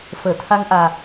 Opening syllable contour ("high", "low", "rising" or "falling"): low